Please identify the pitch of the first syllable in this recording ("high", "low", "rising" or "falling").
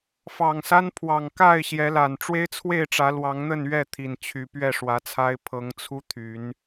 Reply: low